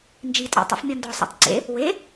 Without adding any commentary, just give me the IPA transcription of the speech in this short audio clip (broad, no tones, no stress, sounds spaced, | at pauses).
n d͡ʒ i tʼ ɔ̰ tˤ ḭ f mʲ ɔ n d ɔ sˤ ṵ tˤ ǀ ḛ | w e